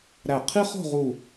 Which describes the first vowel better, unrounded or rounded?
unrounded